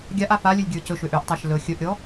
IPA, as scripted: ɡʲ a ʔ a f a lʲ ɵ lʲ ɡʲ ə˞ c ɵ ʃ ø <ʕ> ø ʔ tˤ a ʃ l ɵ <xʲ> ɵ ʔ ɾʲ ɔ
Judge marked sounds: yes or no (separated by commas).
no, yes